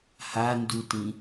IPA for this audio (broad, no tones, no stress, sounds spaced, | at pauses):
h a n d u t ĩ